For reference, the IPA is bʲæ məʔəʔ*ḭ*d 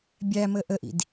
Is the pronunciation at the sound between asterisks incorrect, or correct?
correct